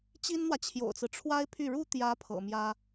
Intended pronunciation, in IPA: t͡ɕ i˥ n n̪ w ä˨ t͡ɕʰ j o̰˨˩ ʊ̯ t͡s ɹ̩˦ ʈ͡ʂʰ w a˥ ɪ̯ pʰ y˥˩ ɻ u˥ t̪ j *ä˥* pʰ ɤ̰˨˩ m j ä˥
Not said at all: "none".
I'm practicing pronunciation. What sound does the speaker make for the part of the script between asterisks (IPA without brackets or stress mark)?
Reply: ä˧˥